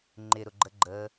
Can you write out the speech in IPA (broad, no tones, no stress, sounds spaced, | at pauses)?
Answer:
ŋ͡ǃ ɪ ɾ ʊ ɡ͡ǃ ə ɡ͡ǃ ə